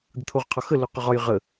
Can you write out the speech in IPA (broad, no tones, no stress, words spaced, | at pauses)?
d̪ət̪ʰoʁqʰɒxə loqʊʁɒj ʁə